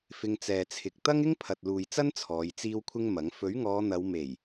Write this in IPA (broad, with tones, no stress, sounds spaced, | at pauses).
f ɪ˧ ŋ t͡s ɛː˨ t͡sʰ ɪ˨ k̚ t̪ ɐ˥ ŋ ɪ˥ ŋ pʰ ɐ˨ t̚ l uː˨ j t͡s ɐ˥ n t͡sʰ ɔː˨˧ j t͡s iː˥ w kʷʰ ɪ˥ ŋ m ɐ˨˥ ŋ f ɵ˨˥ ɥ ŋ ɔː˨˧ n̪ ɐ˨˧ w m e˨˩ j